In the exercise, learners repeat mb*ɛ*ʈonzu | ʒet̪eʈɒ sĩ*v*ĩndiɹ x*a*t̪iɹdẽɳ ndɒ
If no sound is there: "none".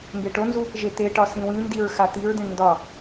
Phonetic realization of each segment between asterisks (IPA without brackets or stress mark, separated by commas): e, w, a